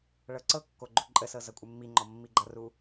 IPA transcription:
ɭ ɤ ǀ ɤ kː o ɡ͡ǃ o ǃʼ ə s ɤ z ʌ kʷʼ ɪ mː i ŋ͡ǃ ɔ mː i ɡ͡ǃ ʌ r u

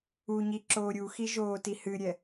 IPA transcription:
u ɲ i ǁ oː ɾʲ u x i ʒ oː t i h ɨ ɾʲ ɛ

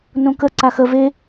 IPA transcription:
n õ k ə ǀ a x ə v e

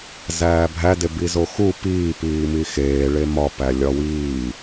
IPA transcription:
z æː bʱ æ d e b i z o x u p iː p iː m i x eː ɭ e m ɒ p æ lʲ ɒ w iː

